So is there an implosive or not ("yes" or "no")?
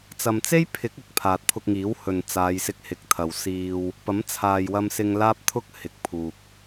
no